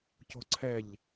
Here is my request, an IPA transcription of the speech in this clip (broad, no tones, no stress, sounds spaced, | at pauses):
c o̤ ǀʰ ɛ ʎ